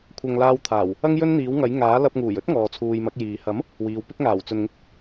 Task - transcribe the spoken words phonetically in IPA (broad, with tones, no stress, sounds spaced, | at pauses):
kʷʰ ɐ˨ ŋ l aː˧ w t̪ʰ aː˨˩ w | ɐ˥ ŋ j ɵ˥ n n̪ iː˨˥ w ŋ ɐ˨˥ j ŋ aː˨˥ l ɐ˧ p̚ ŋ uː˨˩ j ɵ˥ t̚ ŋ ɔː˨ t͡sʰ uː˨ j m ɐ˨˥ k̚ j iː˨ h ɐ˨˥ m | w iː˨˧ w p ɪ˥ k̚ ŋ aː˨˩ w t͡s ɵ˨ n ŋ ɪ˥ k̚